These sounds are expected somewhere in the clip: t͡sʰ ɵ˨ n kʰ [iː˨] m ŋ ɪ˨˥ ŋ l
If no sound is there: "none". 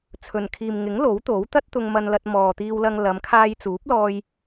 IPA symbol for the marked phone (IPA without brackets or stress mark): iː˨